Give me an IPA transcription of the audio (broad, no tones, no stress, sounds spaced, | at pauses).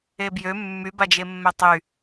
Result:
e b j ø mː y b a d͡ʒ e mː ɛ tˤ y